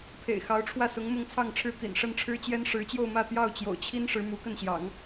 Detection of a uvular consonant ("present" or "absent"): absent